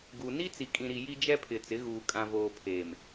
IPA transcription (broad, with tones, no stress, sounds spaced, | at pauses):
ɡ u˨ n i˦ t͡s i˨ kʼ ĩ˨ ɾ i˨ j i˦ d͡ʒ ɛ˦ pʰ ɪ˨ t͡s ɪ˨˦ ɣ uː˨ kʼ ã˨ v oː˨ pʰ eː˨ m